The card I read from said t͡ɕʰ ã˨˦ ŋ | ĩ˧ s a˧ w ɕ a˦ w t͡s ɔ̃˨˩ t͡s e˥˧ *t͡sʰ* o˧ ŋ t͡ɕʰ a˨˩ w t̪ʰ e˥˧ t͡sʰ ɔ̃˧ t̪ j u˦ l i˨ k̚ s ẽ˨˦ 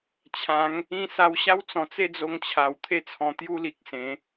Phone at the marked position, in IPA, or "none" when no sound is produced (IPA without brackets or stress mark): d͡z